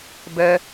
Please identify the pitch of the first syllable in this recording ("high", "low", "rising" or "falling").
high